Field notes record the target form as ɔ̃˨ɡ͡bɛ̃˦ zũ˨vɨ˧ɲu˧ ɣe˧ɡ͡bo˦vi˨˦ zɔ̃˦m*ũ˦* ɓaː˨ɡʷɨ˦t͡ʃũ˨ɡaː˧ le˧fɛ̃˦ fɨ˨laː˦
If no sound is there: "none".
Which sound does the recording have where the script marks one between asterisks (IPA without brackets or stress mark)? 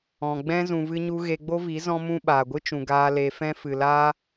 ũ˦